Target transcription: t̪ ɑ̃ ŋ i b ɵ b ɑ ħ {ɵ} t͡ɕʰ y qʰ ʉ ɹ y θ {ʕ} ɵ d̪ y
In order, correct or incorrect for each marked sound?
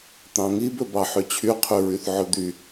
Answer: incorrect: ø, correct

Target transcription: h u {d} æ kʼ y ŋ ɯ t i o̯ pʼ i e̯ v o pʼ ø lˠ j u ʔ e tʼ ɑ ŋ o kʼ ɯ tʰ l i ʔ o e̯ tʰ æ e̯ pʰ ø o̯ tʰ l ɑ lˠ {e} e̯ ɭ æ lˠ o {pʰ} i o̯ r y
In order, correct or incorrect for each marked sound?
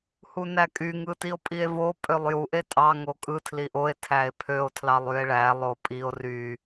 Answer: incorrect: n, incorrect: y, incorrect: pʼ

